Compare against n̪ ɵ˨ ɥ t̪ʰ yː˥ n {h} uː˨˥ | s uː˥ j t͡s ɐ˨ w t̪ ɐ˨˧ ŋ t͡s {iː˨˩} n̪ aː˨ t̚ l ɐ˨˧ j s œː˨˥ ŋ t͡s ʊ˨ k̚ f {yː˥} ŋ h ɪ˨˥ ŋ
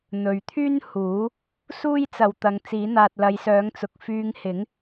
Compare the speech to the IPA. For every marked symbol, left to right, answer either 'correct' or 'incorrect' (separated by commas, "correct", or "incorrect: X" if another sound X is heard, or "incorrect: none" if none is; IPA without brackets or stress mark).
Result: correct, incorrect: iː˨˥, incorrect: yː˧